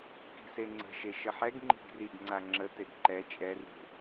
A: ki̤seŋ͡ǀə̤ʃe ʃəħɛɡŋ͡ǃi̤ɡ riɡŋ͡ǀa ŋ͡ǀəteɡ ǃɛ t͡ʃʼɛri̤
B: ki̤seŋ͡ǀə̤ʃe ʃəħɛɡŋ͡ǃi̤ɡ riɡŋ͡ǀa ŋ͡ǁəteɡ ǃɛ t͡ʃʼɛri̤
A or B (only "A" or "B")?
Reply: B